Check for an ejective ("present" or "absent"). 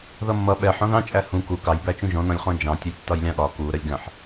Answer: present